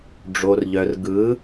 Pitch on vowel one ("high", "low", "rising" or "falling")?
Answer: low